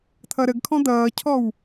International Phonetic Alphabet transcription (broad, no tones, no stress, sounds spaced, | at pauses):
t̪ʰ ʌ ɾ ə ɡ kʰ ɔ̃ d̪ ʌː cʰ ɔ w